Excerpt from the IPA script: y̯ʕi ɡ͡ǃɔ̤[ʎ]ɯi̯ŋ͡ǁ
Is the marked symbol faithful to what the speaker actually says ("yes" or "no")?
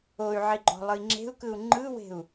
no